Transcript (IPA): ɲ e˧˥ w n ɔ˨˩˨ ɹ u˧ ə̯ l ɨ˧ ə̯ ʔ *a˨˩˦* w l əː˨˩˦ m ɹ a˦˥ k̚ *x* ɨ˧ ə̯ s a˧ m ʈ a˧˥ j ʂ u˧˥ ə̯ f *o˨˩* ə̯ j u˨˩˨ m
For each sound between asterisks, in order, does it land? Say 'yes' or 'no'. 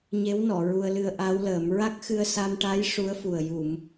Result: no, yes, no

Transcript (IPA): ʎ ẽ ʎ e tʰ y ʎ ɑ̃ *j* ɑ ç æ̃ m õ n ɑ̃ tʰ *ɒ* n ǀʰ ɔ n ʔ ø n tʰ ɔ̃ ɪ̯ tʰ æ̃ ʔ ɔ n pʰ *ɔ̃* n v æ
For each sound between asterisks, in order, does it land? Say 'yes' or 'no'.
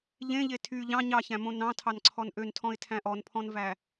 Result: no, no, yes

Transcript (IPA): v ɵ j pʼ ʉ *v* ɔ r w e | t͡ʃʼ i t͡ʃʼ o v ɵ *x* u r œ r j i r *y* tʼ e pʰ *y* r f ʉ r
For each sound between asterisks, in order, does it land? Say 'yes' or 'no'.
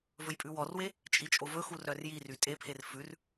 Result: no, yes, yes, no

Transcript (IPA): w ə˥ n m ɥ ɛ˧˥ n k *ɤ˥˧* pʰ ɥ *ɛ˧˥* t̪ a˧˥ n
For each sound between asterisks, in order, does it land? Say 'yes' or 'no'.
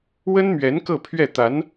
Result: yes, no

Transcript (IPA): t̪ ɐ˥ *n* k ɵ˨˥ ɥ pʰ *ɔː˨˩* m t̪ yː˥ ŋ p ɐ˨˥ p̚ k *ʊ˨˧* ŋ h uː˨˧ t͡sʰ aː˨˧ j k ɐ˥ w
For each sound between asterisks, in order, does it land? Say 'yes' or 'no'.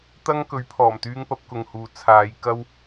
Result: no, yes, no

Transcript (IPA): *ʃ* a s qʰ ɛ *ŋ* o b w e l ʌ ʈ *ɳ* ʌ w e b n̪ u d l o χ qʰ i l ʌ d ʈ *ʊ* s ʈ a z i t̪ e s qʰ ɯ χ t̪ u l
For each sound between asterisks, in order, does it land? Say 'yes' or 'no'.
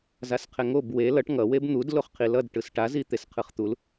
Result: no, yes, no, no

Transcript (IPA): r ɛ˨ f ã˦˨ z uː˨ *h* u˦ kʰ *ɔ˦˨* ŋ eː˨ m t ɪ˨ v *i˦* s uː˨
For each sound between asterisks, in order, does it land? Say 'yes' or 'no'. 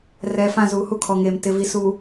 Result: yes, no, no

